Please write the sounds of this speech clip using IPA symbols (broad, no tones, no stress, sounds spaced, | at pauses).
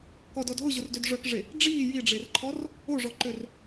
k ɔ d ɔ d ɦ ʊ ʑ ʊ r d ø d ʐ œ k ʐ e | ɖ͡ʐ iː j i ɖ͡ʐ e r ǃʰ ɔ r | o ʐ ɔ ǃ ø r